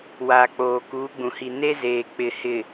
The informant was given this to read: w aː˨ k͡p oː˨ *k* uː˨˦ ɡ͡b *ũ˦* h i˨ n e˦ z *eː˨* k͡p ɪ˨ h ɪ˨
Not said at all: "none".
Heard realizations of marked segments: k, ũ˨, eː˨

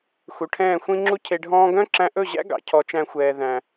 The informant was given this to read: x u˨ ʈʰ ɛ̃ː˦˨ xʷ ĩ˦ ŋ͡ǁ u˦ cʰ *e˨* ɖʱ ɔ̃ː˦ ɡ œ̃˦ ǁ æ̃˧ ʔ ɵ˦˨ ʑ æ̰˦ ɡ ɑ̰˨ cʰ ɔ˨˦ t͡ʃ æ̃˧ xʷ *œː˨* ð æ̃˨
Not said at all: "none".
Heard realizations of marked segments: e˧, ɛː˨

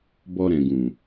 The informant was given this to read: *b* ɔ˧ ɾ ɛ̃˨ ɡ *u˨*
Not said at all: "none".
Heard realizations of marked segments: b, ũ˨

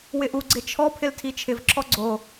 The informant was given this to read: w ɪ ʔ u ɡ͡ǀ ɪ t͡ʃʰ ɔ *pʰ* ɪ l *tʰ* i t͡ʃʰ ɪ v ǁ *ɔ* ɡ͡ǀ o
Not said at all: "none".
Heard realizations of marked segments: pʰ, tʰ, ɔ

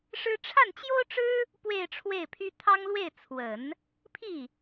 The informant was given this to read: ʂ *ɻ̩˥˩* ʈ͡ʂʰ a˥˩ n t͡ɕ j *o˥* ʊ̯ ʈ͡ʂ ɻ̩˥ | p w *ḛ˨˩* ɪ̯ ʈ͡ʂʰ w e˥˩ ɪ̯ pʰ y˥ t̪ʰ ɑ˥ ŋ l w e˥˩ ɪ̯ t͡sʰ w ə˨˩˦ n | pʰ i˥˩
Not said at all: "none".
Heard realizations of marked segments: ɻ̩˥, o˥, e˥˧

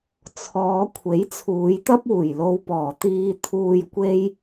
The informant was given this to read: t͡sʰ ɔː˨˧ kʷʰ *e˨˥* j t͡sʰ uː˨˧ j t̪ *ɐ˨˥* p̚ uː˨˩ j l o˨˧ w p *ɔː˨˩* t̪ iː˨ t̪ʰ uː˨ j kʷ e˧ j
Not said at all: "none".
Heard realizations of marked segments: e˨˥, ɐ˥, ɔː˨˩

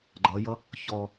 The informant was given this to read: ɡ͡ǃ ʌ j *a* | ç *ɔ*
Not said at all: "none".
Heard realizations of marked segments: ʌ, ɔ

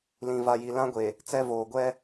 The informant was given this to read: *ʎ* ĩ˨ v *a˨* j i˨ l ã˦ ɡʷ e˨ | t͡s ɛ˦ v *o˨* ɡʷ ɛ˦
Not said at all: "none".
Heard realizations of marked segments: l, a˨, oː˨

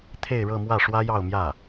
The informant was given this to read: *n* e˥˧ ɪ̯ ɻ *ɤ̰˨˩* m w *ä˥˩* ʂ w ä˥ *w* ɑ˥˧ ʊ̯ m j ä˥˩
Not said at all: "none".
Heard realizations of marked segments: t̪ʰ, ɤ˥˧, ä˥˩, j

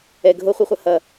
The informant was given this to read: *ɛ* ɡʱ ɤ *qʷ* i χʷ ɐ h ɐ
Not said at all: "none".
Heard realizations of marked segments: ɛ, χʷ

